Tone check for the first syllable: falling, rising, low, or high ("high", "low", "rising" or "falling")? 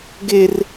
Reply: high